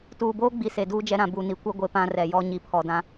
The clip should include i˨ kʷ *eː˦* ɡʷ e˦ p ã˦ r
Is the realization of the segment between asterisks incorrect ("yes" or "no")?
yes